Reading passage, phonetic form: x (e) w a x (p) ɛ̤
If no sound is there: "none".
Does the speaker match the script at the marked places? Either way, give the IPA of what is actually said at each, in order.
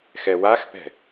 ɛ, p

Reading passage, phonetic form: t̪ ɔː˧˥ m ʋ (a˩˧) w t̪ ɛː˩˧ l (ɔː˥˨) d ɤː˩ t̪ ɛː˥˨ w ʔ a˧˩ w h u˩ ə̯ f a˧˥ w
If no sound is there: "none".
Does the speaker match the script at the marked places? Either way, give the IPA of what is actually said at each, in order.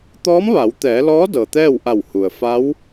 a˩˧, ɔː˧˥

